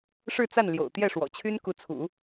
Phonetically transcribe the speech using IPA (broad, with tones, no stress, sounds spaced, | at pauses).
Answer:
ʂ ɻ̩˥˧ t͡s a˥˩ n l j o̰˨˩ ʊ̯ t̪ j ɛ˥˩ ʂ w ɔ̰˨˩ t͡ɕʰ y˥ n k u˧˥ t͡sʰ ṵ˨˩˦